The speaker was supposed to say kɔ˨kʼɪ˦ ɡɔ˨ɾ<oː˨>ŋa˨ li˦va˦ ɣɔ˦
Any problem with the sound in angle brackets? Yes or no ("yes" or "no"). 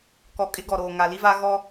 no